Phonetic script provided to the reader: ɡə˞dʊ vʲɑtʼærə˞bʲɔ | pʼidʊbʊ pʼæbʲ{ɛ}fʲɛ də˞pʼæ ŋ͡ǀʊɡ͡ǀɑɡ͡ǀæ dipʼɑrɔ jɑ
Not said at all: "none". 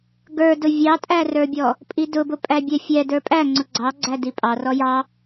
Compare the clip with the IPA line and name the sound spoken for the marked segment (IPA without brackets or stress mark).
ɛ